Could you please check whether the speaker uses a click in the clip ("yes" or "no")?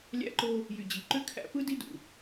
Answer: yes